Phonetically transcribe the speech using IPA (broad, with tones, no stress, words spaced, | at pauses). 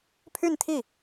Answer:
pʰy˥˧nt̪ʰi˥˩